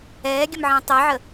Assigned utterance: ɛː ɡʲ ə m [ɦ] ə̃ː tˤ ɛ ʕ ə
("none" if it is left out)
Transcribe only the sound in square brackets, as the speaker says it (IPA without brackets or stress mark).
ʕ